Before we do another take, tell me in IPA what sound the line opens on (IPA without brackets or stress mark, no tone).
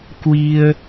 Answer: k